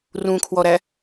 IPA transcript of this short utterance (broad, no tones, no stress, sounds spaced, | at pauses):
r ũ kʰ w ɔ ɾ æ